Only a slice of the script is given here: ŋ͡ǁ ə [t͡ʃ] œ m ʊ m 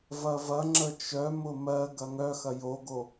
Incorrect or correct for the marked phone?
correct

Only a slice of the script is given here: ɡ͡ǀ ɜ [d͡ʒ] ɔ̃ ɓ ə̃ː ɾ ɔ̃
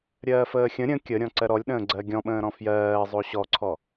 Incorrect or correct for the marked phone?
incorrect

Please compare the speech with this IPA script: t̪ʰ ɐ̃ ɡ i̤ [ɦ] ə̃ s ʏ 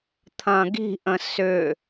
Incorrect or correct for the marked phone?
incorrect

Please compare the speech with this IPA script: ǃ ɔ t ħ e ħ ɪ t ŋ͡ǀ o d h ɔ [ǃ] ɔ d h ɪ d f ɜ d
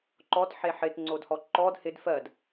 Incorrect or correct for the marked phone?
correct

